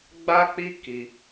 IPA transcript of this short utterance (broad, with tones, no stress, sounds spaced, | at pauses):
ɡ͡b a˦ k͡p i˦ k i˧